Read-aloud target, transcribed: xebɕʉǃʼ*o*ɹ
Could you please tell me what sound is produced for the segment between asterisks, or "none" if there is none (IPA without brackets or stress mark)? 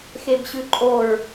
o